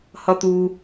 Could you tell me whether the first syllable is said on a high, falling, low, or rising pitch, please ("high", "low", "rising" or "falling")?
low